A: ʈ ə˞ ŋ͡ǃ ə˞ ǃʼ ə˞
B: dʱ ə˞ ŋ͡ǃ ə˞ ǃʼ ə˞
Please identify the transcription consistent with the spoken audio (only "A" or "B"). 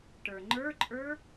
A